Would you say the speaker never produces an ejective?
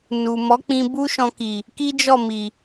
yes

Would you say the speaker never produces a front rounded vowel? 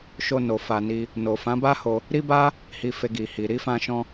yes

